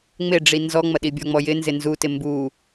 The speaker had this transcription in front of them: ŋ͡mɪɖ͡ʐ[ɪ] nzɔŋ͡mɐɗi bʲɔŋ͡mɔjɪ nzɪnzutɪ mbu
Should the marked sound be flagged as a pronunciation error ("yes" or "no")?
yes